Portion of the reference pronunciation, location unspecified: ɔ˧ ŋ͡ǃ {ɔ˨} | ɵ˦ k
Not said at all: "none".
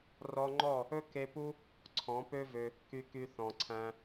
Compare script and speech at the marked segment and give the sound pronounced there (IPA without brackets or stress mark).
ɔ˦˨